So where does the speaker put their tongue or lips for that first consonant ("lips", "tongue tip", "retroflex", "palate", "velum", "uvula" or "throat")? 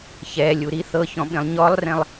palate